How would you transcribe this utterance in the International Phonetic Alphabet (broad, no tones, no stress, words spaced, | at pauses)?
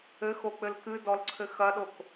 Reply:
ɘxok͡pɘl kɨdɔlǀʰɘ xɐɗok